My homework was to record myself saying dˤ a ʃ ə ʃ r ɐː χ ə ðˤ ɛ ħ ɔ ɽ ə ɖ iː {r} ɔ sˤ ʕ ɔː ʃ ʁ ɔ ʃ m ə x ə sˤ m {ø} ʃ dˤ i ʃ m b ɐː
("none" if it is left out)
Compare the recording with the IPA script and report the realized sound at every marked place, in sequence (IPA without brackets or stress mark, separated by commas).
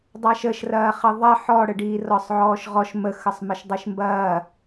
r, ə